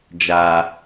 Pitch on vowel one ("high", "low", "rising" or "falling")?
low